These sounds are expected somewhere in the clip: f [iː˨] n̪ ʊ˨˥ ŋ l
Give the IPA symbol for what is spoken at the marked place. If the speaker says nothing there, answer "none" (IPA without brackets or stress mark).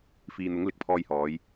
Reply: iː˨